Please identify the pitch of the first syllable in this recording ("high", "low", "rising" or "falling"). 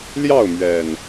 falling